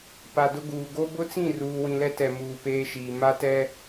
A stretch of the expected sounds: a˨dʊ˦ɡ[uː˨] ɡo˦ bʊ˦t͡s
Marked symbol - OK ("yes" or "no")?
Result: yes